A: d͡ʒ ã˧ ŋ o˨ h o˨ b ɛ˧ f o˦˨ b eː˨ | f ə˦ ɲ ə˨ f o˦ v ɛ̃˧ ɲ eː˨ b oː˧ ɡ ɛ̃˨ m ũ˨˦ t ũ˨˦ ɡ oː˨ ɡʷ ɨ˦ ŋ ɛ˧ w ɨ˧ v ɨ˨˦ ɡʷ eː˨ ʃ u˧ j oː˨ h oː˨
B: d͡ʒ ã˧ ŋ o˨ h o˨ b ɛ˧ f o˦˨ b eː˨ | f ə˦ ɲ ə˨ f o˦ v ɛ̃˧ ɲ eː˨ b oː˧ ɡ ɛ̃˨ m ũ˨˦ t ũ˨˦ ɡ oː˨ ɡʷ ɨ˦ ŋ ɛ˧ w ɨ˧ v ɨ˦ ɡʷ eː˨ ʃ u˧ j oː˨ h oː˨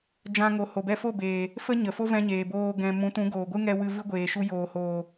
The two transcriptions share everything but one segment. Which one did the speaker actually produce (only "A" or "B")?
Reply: B